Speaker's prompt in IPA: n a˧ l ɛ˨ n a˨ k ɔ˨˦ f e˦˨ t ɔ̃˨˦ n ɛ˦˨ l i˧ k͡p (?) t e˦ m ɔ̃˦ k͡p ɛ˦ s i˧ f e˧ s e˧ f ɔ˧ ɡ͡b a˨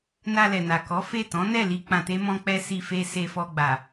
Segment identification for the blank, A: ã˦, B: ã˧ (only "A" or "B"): B